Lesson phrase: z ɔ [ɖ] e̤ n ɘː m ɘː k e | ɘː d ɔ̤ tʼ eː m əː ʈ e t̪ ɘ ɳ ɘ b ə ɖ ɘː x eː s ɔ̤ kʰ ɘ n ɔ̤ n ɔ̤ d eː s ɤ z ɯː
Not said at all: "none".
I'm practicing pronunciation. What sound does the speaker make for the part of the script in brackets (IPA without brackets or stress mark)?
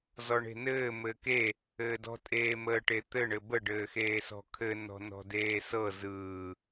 ɳ